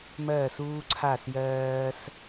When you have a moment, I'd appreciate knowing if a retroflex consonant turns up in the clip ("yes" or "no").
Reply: no